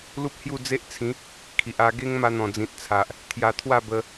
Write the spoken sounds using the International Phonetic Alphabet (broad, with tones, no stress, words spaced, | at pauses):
lu˦p̚hju˥˧ d͡ze˦ʔt͡sʰĩ˨˦ | kʰi˨ʔa˧ ɡe˦ŋma˧ n̪ɔ̃˨˩d͡zĩ˨t̚t͡sʰa˨ʔ | t̪ʰja˧t̪ʰwa˥˧bə˧